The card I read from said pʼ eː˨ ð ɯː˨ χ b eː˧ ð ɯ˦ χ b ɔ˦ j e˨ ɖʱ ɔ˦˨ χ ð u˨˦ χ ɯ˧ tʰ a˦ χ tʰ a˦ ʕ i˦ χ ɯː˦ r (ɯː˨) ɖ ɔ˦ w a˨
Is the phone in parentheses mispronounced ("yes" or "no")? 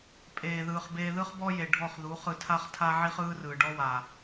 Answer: no